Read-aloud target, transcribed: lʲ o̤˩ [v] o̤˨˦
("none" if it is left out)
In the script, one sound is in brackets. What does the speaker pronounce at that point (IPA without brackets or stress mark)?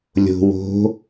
w